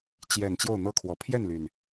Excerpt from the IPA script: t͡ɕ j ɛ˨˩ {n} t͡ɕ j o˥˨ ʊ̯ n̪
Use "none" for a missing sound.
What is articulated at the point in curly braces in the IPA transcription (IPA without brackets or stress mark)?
n